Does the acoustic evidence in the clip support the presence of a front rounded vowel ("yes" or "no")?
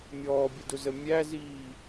no